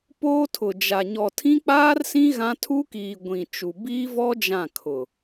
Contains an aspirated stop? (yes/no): yes